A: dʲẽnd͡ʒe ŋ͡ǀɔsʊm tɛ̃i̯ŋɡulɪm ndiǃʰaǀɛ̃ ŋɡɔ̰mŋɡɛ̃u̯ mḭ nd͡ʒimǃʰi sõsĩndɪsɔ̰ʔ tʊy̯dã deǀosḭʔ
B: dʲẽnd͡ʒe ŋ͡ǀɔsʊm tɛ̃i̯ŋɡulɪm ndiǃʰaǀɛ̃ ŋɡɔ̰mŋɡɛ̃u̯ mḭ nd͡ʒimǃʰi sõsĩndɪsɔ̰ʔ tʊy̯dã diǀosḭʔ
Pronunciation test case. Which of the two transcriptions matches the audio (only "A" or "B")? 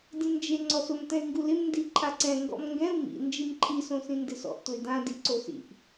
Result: B